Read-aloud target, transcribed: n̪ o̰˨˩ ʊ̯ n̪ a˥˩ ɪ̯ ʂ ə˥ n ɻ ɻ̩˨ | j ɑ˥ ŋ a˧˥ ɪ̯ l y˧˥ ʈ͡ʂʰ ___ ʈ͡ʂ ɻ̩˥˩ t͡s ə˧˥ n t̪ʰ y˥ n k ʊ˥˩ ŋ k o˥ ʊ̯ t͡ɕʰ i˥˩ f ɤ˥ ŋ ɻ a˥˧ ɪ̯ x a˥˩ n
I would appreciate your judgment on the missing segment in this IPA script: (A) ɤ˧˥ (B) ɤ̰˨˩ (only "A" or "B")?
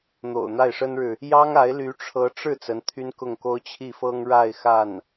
A